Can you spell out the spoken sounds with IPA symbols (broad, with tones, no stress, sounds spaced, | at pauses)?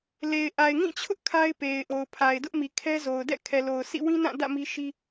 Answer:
l e˨ ɪ̯ ʔ a˨ ɪ̯ ŋ ĩ˦˨ t͡ɕʰ ʊ˦ ʔ kʰ a˦ ɪ̯ p e˨ ɪ̯ ʔ o˨ ʊ̯ pʰ a˨ ɪ̯ d ʊ˦ ʔ m i˨ kʰ ɛ˦ z o˨ ʊ̯ d ɛ̰˦˨ kʰ ɛ˨ l o˨ ʊ̯ sʰ ḭ˦˨ w ĩ˦ n ã˦˨ d ä̰˦˨ m i˦ ʃ i˦